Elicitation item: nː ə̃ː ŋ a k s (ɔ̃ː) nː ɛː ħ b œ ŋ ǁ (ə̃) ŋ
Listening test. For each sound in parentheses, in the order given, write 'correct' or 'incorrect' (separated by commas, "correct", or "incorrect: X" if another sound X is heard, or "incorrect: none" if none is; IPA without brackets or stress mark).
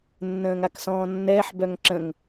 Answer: correct, correct